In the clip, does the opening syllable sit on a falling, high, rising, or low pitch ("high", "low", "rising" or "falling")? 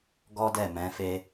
high